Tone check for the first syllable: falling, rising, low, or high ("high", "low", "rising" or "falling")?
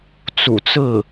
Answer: low